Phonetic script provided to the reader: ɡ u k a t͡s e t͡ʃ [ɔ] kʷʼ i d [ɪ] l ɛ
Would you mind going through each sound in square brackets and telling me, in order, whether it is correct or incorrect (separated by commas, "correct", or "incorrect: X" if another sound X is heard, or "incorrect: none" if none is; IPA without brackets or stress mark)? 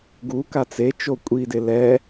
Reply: incorrect: o, correct